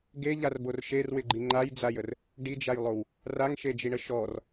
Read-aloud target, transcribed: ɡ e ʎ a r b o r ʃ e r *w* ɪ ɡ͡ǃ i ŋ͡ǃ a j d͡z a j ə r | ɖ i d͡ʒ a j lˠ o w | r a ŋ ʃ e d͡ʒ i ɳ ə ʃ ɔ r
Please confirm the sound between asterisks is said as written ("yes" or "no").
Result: yes